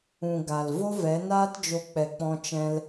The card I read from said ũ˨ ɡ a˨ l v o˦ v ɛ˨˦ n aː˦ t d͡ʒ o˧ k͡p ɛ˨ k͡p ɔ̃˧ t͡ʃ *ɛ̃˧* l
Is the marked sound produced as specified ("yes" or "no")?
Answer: yes